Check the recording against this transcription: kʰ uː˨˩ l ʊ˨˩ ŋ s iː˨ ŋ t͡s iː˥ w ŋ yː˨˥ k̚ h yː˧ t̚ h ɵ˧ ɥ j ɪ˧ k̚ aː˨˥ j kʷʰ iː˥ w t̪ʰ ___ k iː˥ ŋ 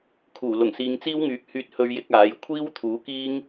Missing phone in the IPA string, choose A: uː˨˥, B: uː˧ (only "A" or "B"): A